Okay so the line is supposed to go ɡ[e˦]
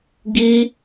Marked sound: incorrect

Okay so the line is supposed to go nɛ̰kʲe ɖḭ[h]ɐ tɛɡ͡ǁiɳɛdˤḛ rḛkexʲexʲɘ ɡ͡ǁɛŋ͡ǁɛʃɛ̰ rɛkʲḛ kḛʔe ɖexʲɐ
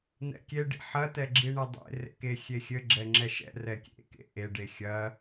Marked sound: incorrect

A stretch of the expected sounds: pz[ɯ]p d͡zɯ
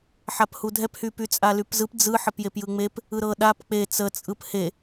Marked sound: correct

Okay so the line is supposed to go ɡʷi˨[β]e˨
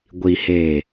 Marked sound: incorrect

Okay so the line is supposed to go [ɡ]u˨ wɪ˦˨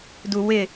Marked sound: incorrect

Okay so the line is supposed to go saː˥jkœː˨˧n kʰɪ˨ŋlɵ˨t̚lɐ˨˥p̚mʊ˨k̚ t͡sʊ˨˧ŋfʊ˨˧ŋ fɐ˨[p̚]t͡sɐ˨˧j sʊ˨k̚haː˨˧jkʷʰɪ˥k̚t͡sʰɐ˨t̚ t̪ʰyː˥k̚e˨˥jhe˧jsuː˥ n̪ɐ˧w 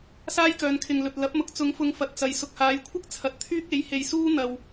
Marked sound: incorrect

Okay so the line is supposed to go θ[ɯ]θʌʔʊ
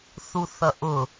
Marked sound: incorrect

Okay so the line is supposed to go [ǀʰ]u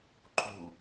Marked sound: incorrect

